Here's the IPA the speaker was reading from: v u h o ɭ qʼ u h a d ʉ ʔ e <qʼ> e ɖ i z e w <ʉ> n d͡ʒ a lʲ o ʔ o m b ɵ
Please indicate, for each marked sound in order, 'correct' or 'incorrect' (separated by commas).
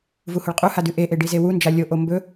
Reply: incorrect, incorrect